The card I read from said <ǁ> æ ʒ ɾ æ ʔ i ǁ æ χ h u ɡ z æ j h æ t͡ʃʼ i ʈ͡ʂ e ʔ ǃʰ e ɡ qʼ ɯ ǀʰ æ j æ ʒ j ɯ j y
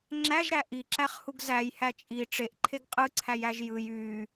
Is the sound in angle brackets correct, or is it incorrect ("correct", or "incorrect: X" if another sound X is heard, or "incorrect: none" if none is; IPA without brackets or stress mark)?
incorrect: ŋ͡ǁ